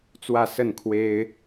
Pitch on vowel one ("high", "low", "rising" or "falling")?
falling